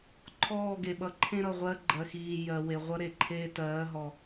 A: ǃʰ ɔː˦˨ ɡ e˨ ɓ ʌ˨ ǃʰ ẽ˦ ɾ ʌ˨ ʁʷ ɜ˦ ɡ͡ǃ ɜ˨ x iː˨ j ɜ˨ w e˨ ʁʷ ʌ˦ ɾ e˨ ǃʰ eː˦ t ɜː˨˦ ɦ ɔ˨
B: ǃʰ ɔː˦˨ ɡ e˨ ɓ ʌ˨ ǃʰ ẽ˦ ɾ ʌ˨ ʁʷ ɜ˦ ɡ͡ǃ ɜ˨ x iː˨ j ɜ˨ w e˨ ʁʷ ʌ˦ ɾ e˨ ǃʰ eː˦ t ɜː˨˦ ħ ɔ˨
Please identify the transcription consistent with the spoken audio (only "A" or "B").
A